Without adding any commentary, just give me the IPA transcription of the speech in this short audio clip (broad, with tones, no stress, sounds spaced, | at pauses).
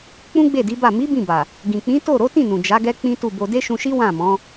k͡p ũ˦ ɡ͡b e˦˨ d i˨˦ b a˦˨ m i˨˦ b ĩ˦˨ b a˨ | ɡ ĩ˨ k͡p ĩ˨˦ t o˦˨ ɾ o˨˦ t ĩ˦˨ n ũ˨ d͡ʒ a˨˦ ɡ ɛ˦ k͡p ĩ˦ t u˦˨ b o˧ d e˦ ʃ ũ˧ ʃ i˦ w ã˦˨ m ɔ̃˨˦